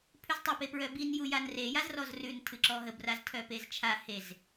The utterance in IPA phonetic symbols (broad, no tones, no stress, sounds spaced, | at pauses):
pʰ ʉ z tˤ u p e p ɹ œ b i n j u j a n r e j a z r ɔ z r ʉ n tʰ ɨ ǁ ɔ ɦ ə b r a z tʰ œ p e z t͡ʃʰ a h e z